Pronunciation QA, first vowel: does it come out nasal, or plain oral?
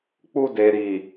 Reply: oral